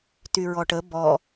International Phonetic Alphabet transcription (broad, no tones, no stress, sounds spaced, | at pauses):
t y ɹ ɔ ʈ ə b ɔ